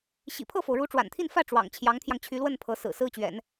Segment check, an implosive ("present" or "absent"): absent